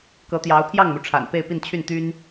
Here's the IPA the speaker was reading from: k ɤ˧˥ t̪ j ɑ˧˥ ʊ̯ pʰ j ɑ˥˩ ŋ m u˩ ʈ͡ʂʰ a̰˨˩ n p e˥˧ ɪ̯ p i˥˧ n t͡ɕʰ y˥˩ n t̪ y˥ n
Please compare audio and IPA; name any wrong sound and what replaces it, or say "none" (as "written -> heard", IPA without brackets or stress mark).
none